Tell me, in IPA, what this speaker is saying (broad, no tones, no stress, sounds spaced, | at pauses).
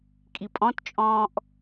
kʼ i pʼ ɔ̃ t t͡ʃʼ ɔ̃ː ʔ